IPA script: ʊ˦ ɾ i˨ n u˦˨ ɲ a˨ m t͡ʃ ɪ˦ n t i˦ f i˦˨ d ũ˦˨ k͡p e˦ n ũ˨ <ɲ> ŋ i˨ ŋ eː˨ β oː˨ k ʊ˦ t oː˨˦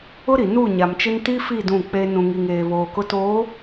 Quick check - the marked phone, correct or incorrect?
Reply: incorrect